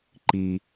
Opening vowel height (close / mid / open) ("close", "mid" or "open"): close